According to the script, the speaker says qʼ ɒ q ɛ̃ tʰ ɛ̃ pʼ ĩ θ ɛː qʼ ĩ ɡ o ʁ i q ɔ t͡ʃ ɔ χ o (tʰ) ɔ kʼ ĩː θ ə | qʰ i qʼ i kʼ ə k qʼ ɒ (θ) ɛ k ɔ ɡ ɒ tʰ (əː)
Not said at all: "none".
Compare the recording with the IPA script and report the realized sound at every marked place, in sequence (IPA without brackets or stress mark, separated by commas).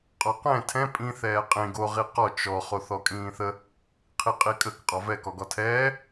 θ, v, ɛː